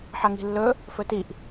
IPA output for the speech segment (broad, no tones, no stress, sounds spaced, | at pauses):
ħ ɐ ŋ i̤ lː ɵ | f ɵ t i ʔ